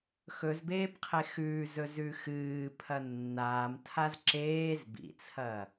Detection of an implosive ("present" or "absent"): absent